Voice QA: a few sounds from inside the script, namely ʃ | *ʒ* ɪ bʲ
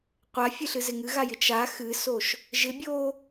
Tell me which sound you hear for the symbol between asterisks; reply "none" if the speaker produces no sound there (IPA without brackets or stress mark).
ʒ